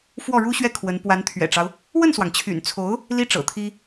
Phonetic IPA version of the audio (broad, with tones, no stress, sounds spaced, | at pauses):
f w ɔ˥˩ ɻ u˥ ɕ ɥ ɛ˥˩ kʰ w ə˧˥ n p w a˧˥ n t̪ʰ ɥ ɛ̰˨˩ ʈ͡ʂ ɑ˦ ʊ̯ | w ə˥˩ n s w ɑ˩ ŋ t͡ɕʰ y̰˨˩ n t͡sʰ o˧˥ ʊ̯ | l i˥ ʈ͡ʂ ɤ̰˨˩ t̪ʰ i˥